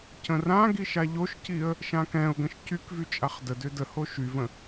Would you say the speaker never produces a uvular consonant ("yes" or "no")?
no